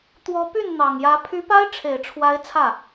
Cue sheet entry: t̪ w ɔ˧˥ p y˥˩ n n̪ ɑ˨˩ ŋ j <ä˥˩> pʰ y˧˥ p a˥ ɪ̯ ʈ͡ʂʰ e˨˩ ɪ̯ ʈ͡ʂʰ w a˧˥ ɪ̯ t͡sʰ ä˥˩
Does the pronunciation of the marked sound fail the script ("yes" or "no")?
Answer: yes